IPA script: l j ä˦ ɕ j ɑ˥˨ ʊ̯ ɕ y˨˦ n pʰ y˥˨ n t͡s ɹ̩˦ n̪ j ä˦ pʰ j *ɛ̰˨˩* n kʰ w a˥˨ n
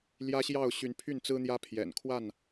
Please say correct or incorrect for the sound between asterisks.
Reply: correct